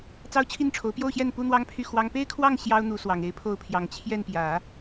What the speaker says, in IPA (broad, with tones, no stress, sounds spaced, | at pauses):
t͡s ɑ˥ ʊ̯ t͡ɕʰ i˥˩ n ʈ͡ʂʰ o˧˥ ʊ̯ p j o˥˧ ʊ̯ ɕ j ɛ˥˩ n p u˥ n̪ w ɑ˥ ŋ pʰ y˥˩ x w ɑ˥ ŋ p e˥ ɪ̯ kʰ w ɑ˥˩ ŋ ɕ j ɑ˥ ʊ̯ n̪ u˧˥ s w ɑ˨˩ ŋ e˧˥ ɪ̯ pʰ o˥˩ ʊ̯ pʰ j ɑ˨˩ ŋ t͡ɕʰ j ɛ˥˩ n p j ä˨˩˦